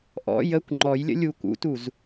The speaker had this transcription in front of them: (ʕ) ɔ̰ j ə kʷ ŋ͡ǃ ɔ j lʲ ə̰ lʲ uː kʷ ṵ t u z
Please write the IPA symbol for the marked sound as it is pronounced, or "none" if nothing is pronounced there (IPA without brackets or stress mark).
ʔ